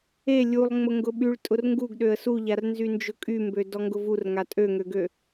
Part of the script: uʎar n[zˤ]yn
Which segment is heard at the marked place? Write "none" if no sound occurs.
z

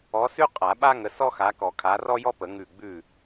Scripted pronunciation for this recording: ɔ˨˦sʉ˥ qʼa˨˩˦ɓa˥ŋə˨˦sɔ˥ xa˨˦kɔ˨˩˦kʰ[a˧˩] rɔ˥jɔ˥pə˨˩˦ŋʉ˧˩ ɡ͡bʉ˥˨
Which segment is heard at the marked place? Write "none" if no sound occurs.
a˨˦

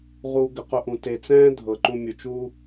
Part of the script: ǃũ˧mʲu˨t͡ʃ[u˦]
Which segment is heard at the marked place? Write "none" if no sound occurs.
u˦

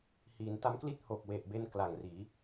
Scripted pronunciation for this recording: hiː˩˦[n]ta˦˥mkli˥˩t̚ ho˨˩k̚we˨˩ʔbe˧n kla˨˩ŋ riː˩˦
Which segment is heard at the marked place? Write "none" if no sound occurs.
n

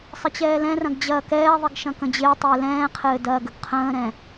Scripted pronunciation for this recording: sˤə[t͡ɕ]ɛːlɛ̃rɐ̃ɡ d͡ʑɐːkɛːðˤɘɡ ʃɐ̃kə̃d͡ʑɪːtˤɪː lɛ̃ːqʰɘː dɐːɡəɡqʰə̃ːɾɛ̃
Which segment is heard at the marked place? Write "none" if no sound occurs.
t͡ɕ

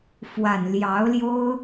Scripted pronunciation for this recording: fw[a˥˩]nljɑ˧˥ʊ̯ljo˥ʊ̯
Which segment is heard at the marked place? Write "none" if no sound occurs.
a˨˩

